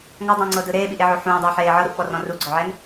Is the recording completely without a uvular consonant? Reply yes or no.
yes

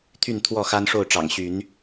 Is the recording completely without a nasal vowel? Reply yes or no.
yes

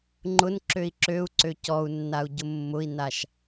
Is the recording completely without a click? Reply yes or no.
no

